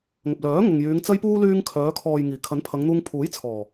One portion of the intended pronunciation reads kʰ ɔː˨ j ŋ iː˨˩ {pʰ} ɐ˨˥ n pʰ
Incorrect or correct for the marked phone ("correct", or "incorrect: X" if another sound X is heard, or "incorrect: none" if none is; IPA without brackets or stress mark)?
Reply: incorrect: kʰ